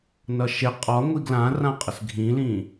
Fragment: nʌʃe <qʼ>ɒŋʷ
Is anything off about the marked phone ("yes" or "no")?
no